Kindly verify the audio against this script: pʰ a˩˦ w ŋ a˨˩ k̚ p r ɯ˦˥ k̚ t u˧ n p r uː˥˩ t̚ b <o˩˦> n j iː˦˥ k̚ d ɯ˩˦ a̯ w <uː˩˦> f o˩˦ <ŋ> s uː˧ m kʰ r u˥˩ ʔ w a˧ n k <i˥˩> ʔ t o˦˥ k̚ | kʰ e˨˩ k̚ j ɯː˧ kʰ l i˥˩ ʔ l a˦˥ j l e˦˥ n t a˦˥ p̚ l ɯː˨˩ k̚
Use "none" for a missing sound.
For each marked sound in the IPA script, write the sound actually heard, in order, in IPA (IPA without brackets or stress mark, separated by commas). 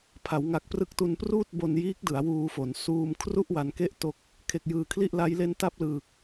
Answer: o˧, uː˧, n, e˥˩